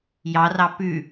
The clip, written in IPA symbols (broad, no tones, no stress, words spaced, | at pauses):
jɑrɑ pʉ